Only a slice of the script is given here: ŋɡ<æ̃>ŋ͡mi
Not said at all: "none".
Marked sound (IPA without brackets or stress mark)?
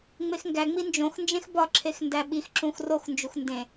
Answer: æ